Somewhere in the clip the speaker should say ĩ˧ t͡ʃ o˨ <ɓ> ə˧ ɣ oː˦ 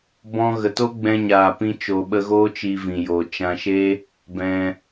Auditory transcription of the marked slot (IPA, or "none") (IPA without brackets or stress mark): ɓ